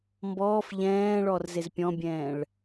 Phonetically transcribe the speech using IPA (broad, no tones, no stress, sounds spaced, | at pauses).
m b ɔː f ʎ ɛ̃ː ɭ ɔ r z e z pʲ ɔ̃ bʲ ɛ̃ː ɭ